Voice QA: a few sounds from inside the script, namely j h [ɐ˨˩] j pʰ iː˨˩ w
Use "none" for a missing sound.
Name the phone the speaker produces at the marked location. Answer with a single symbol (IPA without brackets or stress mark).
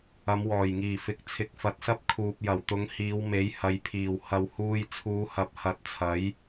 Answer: ɐ˨